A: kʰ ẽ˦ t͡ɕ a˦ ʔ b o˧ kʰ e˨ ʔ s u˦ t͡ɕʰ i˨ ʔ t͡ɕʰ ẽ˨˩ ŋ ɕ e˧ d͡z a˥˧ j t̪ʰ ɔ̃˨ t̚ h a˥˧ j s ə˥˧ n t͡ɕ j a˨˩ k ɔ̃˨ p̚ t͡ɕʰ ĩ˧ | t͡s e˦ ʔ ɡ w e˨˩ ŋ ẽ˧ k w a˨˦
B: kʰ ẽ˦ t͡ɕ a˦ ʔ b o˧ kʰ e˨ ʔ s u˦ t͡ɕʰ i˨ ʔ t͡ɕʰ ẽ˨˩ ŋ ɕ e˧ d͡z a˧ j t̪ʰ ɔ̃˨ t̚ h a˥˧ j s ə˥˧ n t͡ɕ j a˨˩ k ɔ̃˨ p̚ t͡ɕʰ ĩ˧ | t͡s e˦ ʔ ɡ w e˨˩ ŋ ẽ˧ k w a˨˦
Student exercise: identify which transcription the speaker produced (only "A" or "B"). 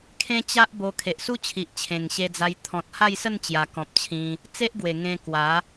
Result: B